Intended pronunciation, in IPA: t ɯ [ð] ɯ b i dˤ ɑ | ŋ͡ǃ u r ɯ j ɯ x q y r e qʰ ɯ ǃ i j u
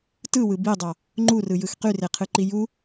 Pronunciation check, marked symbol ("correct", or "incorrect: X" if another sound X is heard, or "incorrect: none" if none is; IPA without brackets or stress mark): incorrect: w